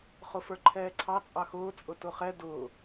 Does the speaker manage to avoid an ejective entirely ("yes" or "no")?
no